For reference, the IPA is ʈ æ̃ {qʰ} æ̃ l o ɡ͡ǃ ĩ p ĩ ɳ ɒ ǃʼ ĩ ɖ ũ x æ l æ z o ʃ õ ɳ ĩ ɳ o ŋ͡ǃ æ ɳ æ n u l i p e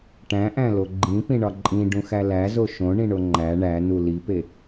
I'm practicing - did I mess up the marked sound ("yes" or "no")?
yes